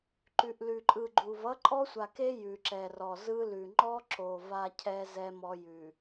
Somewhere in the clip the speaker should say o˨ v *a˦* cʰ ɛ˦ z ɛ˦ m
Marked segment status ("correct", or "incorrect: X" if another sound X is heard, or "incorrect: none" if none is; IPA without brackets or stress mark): correct